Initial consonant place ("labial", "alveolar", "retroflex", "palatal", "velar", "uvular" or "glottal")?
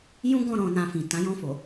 palatal